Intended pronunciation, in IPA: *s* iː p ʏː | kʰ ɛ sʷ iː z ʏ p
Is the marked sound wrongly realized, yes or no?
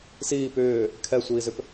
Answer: no